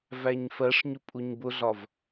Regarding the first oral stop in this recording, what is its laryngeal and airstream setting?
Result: ejective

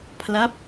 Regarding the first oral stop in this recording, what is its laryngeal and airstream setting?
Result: aspirated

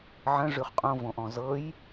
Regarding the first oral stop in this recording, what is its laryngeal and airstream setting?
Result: ejective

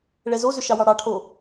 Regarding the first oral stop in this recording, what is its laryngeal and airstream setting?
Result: aspirated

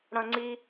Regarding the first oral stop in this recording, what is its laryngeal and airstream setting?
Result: click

